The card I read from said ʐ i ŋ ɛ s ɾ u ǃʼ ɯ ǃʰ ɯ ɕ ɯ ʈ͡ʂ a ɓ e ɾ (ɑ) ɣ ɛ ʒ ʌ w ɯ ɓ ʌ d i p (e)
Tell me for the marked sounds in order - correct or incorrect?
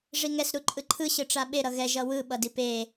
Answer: incorrect: ʌ, correct

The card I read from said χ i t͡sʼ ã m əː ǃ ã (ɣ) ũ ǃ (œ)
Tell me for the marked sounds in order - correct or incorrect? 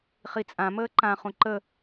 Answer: incorrect: χ, incorrect: ə

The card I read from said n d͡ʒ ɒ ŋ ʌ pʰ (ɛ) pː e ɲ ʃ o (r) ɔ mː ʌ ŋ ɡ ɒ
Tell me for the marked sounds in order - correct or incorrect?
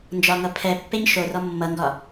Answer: correct, correct

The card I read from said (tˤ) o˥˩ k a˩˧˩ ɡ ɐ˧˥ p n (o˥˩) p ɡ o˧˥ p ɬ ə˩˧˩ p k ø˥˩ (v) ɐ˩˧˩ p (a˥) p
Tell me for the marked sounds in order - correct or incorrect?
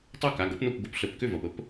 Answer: correct, correct, correct, incorrect: ə˥

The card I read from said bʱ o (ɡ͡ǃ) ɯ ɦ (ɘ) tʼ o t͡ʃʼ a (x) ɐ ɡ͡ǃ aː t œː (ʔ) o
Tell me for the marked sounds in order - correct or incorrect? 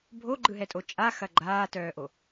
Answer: correct, incorrect: ɛ, correct, correct

